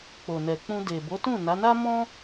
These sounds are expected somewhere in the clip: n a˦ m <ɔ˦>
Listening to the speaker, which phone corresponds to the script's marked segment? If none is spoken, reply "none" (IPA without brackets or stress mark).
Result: ɔ̃˦